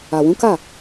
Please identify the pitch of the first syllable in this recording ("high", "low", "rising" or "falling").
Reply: low